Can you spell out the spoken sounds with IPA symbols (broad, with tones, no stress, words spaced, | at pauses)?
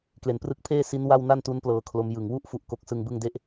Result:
kle˩˦nprɯ˦˥k̚pʰeː˥˩ si˦˥nwa˥˩w na˥˩ntu˦˥n plɤː˧kʰlo˦˥m jɯ˨˩ŋwu˥˩ʔ fu˥˩ʔko˥˩k̚sɯ˥˩ŋ bɯ˥˩ŋ de˥˩ʔ